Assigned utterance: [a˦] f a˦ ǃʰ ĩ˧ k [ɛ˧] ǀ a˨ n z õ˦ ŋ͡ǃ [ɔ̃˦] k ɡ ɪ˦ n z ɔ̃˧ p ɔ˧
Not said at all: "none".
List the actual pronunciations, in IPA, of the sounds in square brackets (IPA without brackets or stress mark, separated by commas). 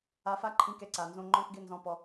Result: a˧, ɛ˧, ɔ̃˦